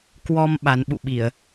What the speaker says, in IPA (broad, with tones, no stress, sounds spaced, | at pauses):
k w ɔ˧ m ɓ a˨˦ n ɓ ṵ˧˨ ɓ i˧˩˨ ə̯